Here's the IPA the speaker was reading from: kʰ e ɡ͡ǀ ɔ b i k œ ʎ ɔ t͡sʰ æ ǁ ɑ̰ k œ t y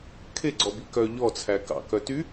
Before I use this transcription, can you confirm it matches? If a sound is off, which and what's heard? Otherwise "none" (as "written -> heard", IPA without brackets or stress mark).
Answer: ǁ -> k